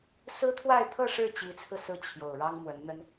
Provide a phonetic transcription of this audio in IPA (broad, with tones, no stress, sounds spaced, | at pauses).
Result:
s ɹ̩˥ t̪ʰ w a˥˧ ɪ̯ t̪ʰ ɤ˥˧ ʂ ɻ̩˥˩ t͡ɕ i˧˥ t͡sʰ ɹ̩˧ s ɹ̩˥˩ t͡ɕʰ j o˨˩ ʊ̯ ɻ ɑ˥ ŋ m w ə˧˥ n n̪ ə˥ n